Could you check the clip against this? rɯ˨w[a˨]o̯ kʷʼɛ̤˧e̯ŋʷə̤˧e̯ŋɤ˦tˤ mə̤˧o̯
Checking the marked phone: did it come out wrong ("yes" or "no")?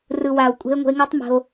no